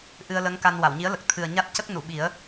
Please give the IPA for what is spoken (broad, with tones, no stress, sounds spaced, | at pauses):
ʔ ɨ˧ ə̯ l ə˧˥ ŋ k a˧ n w a˨˩˨ w ɲ i˧˥ ə̯ l ə˨˩ k̚ t̪ʰ ɨ˨˩ ə̯ ɲ a˦˥ t̚ c ə˦˥ k̚ n u˨˩˨ ɓ i˨˩˦ ə̯